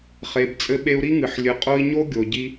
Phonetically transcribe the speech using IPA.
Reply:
χ e˨ b t͡sʼ ɘ˦ ɓ e˦ u̯ ɾ i˥ ŋ ɨ˨ ħ lʲ ɨ˨ qʼ o˦ i̯ ɲ o˥ ɡʲ o˨ ɟ i˥

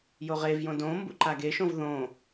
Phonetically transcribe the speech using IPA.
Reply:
j o ʁ e v j õ d õ m b ṵ ǃ a ɡ e ʃ õ v ð õ

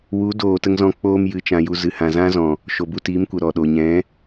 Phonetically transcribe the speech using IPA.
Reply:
w u˨˦ d oː˨ t ə˧ ŋ z ɔ̃˧ k͡p oː˧ m j ɨ˨ t͡ʃ ã˨ j u˨ z ɨ˨ h ã˨ z ã˦ z ɔ̃˨ | ʃ o˨ b u˧ t iː˨˦ m kʷ ə˨ ɾ ɔ˨ ɗ o˨ ɲ ɛ̃˨˦

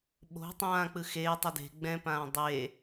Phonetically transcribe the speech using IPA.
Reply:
ɓ o̤ tˤ ãː k͡p ɯ x eː tˤ o d e̤ ɡ͡b ɛ̃ p ãː dˤ e

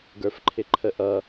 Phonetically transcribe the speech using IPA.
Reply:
ɡ ə˞ f ǃʰ ɪ ǃʰ ə ʔ ʌ

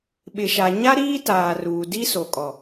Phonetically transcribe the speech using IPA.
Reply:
ɓ ɪ˨ ʃ a˨ ɲ a˦ ɾ iː˦ t aː˨ r uː˨ d i˦ s o˨ kʼ ɔ˨

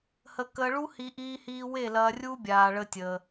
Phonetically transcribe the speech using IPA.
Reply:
h ə˧ k əː˧ ɭ u˦ h i˧ ʔ iː˦ h iː˦ w e˦˨ l ɐː˧ rʲ u˦ bʲ aː˧ ɭ ə˦ tʲ əː˧

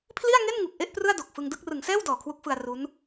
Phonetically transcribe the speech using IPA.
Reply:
pʰ l i˥˩ a̯ ŋ e˥˩ n ŋ u˨˩ k̚ ʔ e˥˩ ʔ p r ɯ˥˩ a̯ d o˨˩ k̚ f ɯ˧ ŋ d ɯ˥˩ k̚ r ɯ˩˦ ŋ s ɛː˥˩ w d ɔː˨˩ kʰ w u˦˥ k̚ f ɯ˧ a̯ r u˦˥ n

